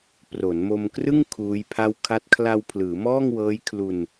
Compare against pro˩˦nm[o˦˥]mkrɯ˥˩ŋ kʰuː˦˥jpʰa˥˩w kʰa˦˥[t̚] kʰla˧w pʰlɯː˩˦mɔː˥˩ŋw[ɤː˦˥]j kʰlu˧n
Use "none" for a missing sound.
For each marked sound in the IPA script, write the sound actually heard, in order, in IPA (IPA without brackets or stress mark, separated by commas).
o˧, t̚, ɤː˦˥